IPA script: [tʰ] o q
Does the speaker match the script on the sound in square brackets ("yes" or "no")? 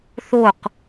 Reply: no